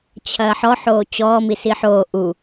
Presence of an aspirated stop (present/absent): present